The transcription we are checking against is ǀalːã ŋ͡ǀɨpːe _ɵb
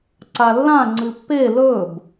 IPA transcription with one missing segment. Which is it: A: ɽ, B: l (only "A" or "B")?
B